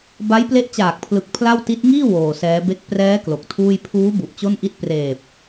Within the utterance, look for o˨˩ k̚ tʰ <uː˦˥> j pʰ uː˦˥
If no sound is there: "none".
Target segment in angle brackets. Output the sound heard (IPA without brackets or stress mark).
uː˥˩